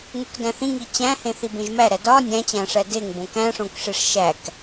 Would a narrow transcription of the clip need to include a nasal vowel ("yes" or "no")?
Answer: yes